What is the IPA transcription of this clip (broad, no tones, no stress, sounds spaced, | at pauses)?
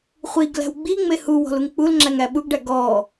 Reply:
χʷ i ɡ l æ̤ w ɡ͡b i ŋ͡m e h u w ɔ̤ l u ŋ k͡p u l ŋ͡ǁ æ ŋ æ ɓ u ɡ ɖ æ ɡ ɔː